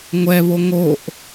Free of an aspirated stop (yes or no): yes